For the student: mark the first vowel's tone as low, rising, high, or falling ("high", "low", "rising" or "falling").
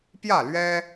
falling